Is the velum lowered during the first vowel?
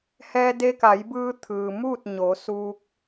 no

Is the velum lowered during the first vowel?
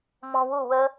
yes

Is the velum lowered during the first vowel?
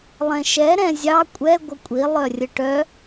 yes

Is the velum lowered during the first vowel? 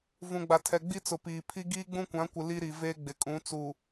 yes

